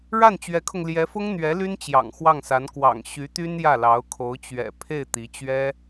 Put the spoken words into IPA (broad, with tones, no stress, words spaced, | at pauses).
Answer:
ɻa˥˩nt͡ɕɥɛ˧˥kʰʊ˧ŋ ljɛ˧˥fʊ˥ŋn̪ɥɛ˧˥ ly˥nt͡ɕjɑ̰˨˩ŋ xwɑ˥˩ŋsa˧˥n kwɑ̰˨˩ŋ ɕy˧˥t̪y˥n jä˥˩lɑ˧˥ʊ̯kʰo˧˥ʊ̯ t͡ɕɥɛ̰˨˩ pʰe˥˩ɪ̯t̪i˧˥ t͡ɕɥɛ˥